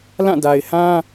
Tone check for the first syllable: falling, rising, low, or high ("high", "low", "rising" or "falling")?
falling